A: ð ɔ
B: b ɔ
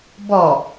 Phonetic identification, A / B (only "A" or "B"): B